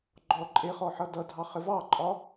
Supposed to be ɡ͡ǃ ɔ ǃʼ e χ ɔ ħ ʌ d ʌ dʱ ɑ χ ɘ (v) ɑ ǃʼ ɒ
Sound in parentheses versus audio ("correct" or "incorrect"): correct